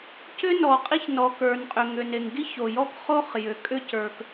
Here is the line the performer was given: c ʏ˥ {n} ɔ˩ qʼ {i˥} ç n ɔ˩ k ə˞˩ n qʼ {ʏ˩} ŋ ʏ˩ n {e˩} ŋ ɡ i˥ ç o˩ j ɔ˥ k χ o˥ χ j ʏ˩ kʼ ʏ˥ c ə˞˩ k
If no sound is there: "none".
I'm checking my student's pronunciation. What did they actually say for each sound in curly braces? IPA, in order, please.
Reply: n, i˥, ʏ˩, e˩

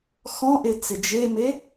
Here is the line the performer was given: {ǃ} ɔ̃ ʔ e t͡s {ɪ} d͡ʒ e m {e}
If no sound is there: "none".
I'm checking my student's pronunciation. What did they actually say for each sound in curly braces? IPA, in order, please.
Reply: x, ɪ, e

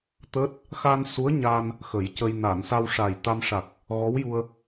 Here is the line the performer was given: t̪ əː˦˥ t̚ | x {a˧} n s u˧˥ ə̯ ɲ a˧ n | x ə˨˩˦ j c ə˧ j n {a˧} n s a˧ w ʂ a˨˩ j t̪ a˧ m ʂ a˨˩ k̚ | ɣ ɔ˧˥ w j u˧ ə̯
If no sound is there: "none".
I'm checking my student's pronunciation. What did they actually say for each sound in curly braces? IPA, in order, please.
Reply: a˧, a˨˩˨

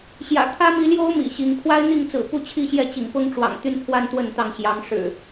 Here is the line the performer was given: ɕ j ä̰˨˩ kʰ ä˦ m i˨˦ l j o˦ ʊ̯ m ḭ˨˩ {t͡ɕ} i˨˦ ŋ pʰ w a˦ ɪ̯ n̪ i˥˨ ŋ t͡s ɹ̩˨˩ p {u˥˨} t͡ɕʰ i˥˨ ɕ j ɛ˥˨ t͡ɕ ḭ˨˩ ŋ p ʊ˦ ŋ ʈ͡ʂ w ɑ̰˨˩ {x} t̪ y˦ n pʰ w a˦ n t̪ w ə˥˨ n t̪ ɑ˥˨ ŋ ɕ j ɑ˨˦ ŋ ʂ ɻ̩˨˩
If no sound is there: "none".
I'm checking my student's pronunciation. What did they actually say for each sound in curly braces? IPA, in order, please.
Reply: ɕ, u˥˨, ŋ

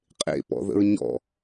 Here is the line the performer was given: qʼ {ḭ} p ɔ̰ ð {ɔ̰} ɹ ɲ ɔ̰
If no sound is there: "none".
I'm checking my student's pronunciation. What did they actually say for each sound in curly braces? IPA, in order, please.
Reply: ḛ, ə̰

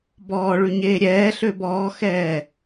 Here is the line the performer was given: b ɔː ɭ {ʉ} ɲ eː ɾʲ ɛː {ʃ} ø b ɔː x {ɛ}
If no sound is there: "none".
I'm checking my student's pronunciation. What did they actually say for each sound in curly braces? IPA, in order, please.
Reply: ʉ, ɬ, ɛː

